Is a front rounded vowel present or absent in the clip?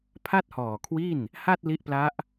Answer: absent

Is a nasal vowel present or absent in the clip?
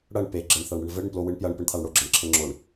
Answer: absent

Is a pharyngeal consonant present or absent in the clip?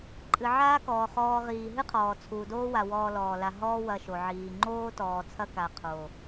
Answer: present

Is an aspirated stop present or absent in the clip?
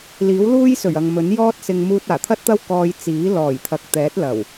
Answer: present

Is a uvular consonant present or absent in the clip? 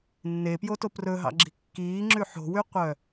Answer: present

